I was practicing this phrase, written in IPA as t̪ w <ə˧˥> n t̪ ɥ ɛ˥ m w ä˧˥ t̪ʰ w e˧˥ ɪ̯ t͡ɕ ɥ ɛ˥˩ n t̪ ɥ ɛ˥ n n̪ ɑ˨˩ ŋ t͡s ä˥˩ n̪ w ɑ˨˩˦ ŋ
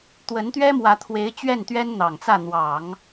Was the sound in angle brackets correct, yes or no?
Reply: yes